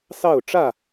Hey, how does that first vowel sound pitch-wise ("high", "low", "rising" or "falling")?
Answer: falling